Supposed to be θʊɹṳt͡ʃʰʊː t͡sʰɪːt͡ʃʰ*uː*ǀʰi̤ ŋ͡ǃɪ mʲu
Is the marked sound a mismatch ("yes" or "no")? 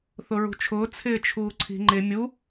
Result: no